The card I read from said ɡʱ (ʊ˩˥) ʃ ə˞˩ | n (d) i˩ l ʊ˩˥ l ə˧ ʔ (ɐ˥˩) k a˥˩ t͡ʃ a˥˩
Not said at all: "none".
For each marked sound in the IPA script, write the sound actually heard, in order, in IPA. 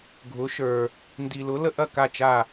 ʊ˩˥, d, ɐ˥˩

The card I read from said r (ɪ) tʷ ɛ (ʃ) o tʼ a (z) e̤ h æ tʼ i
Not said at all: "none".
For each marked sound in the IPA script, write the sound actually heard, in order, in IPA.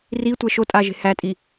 i, ʃ, ʒ

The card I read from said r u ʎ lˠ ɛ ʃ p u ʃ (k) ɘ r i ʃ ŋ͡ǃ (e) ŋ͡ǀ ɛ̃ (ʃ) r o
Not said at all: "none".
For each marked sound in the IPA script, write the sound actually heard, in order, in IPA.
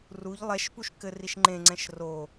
k, ẽ, ʃ

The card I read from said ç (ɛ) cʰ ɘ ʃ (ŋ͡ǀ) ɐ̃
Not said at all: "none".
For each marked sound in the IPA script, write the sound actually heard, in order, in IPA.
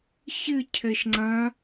ɨ, ŋ͡ǀ

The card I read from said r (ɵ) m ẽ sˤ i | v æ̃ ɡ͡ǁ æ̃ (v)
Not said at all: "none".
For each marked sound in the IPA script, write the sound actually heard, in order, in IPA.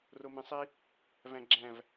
o, v

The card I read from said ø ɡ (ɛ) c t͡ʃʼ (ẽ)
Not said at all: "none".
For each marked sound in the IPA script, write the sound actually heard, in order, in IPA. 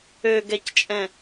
ɛ, ɛ̃

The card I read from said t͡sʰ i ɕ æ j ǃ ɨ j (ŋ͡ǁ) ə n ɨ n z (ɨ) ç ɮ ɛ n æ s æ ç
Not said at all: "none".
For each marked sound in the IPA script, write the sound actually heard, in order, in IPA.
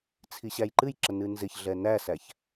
ǁ, ɪ

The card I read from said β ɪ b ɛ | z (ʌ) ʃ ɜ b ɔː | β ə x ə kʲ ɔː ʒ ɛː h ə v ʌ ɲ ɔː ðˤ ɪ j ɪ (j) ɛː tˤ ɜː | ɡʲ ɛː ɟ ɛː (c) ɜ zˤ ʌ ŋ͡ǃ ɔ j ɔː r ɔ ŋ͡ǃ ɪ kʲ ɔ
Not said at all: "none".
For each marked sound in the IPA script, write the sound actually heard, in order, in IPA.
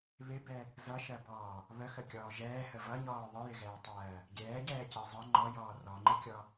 ʌ, ɣ, c

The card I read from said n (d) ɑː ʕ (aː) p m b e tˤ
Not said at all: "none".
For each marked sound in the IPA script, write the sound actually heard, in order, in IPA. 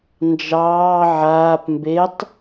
d͡ʒ, aː

